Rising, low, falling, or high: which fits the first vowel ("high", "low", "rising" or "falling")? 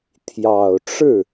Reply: low